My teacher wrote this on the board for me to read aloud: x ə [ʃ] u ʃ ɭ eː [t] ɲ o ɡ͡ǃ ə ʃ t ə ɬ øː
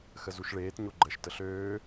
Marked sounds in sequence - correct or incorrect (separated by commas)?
incorrect, correct